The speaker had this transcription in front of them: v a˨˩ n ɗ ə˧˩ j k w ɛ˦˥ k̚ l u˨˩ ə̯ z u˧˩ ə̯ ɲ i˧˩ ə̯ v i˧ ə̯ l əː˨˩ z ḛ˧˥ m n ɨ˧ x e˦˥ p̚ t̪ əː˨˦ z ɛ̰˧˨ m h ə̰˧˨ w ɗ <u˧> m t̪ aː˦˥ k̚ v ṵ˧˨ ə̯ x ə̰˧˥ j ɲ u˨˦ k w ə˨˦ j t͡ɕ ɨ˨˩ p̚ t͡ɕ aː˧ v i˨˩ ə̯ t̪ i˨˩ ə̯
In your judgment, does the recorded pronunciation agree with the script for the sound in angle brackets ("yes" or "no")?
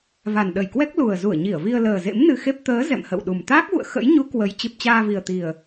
no